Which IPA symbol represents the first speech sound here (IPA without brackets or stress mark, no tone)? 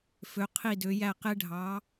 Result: f